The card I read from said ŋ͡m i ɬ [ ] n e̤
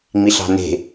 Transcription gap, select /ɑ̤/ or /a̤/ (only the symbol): ɑ̤